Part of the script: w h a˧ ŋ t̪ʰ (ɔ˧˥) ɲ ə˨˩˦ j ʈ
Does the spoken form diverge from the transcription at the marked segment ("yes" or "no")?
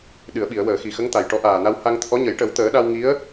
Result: no